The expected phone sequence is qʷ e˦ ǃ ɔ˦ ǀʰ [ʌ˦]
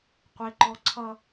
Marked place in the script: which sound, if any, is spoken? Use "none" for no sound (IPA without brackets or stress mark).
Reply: ʌ˦